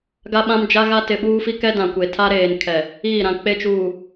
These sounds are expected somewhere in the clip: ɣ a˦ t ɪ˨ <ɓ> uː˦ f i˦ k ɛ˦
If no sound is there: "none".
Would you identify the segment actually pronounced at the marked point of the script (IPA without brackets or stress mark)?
ɓ